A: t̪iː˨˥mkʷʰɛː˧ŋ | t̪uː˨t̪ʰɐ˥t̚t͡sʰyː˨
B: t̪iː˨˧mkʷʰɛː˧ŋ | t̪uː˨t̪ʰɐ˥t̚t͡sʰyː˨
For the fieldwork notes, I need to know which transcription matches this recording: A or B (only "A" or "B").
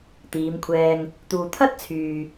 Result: B